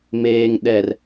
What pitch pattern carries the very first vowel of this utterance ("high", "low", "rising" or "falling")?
low